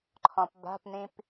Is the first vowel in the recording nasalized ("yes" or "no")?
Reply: yes